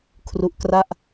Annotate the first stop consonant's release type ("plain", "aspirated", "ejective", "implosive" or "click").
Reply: aspirated